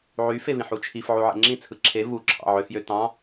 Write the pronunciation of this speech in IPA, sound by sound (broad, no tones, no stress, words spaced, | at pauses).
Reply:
ʕyfevĩħ ut͡ʃʰif ʕuʕḛŋ͡ǁĩ t͡sʰɯǁʰe vuǁʰɑ̰ ʕøfjø tɑ̃